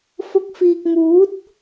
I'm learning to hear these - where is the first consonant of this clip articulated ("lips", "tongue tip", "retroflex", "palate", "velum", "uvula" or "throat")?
lips